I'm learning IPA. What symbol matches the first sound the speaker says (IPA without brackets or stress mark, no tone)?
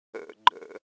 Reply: ə̰